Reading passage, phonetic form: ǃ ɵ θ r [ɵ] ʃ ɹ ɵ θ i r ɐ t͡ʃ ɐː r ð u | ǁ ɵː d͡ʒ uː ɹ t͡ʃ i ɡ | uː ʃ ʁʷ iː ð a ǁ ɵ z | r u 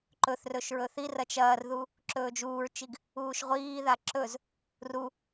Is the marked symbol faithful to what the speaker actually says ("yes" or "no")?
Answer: yes